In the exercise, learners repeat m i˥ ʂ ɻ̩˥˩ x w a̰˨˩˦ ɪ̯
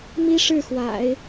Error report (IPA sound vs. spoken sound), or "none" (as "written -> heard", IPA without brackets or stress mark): none